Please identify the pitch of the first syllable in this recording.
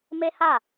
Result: high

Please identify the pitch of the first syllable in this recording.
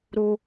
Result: high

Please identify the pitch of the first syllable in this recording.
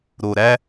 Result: low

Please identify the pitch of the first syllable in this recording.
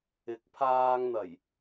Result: rising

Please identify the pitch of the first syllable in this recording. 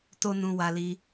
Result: high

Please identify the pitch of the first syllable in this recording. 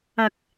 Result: low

